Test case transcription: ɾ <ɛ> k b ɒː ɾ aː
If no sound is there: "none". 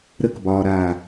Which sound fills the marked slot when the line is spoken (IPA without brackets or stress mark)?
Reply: ə